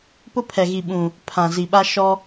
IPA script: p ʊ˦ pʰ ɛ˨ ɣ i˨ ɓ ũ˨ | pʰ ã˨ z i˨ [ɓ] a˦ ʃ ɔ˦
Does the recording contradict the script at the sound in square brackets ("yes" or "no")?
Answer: no